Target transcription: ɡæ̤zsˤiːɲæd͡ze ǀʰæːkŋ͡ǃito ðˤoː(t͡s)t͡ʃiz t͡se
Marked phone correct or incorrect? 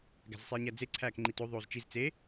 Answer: incorrect: z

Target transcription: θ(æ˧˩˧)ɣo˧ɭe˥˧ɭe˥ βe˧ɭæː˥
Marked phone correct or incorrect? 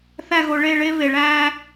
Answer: incorrect: æ˥˧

